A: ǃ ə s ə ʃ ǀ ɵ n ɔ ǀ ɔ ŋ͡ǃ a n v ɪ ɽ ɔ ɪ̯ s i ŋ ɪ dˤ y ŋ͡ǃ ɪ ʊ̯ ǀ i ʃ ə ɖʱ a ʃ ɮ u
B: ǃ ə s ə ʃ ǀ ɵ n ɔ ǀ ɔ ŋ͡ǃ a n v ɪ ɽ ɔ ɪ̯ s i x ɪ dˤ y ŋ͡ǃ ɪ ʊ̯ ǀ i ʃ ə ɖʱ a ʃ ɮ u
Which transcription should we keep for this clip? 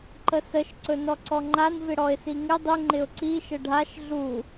A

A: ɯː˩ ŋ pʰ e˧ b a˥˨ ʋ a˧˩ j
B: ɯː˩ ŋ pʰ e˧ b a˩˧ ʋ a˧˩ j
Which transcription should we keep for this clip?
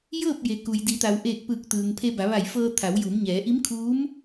B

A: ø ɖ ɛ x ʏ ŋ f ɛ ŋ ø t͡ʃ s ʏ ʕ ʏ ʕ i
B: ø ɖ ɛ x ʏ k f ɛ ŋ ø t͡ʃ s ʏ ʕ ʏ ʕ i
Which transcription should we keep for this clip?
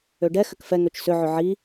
B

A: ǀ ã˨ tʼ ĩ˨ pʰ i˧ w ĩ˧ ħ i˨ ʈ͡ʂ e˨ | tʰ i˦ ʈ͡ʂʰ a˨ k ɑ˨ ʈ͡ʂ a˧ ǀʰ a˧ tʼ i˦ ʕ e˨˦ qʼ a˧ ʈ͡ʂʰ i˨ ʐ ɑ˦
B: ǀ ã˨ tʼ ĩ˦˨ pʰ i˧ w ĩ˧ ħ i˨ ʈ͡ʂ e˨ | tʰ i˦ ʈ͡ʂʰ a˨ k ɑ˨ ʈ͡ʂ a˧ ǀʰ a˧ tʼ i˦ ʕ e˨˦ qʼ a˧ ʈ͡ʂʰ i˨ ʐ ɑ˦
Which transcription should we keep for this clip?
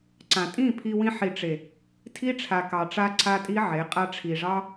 B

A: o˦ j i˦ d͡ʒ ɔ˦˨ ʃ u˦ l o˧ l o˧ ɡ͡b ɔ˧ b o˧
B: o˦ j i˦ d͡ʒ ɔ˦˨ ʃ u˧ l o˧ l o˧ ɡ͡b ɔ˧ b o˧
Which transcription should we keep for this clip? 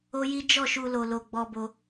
B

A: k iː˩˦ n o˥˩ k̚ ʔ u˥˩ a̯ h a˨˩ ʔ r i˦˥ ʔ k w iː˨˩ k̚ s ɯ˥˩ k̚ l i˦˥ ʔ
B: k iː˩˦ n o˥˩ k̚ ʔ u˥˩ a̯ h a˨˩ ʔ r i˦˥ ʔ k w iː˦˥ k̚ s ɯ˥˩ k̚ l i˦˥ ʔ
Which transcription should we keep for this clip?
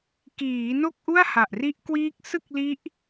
B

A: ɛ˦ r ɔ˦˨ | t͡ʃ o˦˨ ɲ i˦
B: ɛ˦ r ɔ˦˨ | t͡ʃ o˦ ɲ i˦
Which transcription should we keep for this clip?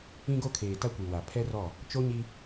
B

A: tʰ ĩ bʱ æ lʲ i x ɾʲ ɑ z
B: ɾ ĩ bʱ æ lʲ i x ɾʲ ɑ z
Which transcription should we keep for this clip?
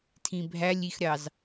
A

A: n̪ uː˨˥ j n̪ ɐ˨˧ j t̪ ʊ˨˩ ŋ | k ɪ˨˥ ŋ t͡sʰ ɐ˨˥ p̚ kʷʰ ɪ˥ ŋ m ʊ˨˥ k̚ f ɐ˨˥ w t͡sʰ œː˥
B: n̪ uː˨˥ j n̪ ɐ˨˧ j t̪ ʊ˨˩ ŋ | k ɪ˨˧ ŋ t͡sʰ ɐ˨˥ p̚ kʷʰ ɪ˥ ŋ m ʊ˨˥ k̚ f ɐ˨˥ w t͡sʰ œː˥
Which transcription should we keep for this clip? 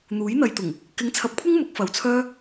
A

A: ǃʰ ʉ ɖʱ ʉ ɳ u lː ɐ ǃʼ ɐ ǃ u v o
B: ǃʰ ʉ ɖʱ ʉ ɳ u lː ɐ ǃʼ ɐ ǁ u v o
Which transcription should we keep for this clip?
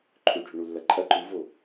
A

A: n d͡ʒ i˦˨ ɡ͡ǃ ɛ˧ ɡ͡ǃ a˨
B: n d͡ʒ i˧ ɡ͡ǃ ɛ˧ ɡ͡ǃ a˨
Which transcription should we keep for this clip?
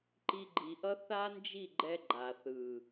A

